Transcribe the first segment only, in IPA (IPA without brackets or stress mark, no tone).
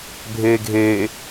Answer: bʱ